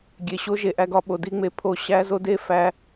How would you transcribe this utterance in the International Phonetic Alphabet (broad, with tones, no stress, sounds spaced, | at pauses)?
ɡʲ e˨ ɕ o˦ ʒ e˨ ʔ æ˦ ɡ ɒ˦ ɓ o˨ d i˦ ŋ͡m e˦ pʰ o˦˨ ɕ æ˦ z o˦ d e˦ f æ˦